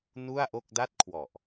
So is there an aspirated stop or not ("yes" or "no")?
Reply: yes